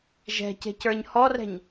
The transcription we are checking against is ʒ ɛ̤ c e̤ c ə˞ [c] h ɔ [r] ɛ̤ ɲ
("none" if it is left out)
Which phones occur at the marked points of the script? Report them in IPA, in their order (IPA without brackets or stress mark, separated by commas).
ɲ, r